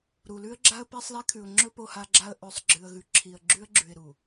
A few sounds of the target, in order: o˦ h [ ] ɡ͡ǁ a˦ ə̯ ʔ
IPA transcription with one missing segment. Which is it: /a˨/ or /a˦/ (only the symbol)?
a˦